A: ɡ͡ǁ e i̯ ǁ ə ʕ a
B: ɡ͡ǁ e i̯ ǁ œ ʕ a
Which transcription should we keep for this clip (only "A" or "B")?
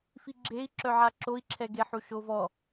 B